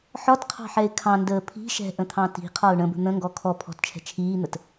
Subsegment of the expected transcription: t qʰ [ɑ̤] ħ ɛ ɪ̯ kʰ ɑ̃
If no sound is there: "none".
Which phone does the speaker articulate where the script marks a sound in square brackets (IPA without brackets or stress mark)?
ɑ̤